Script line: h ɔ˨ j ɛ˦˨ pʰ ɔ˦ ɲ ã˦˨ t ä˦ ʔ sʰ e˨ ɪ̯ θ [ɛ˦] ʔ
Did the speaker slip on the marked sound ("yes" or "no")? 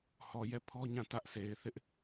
yes